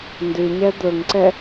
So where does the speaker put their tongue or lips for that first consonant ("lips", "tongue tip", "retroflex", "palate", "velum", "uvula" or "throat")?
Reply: tongue tip